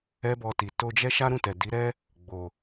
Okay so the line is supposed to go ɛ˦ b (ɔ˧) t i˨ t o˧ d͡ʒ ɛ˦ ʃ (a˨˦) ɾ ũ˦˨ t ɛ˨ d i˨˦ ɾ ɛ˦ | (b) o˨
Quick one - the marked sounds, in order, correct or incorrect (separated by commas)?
correct, incorrect, incorrect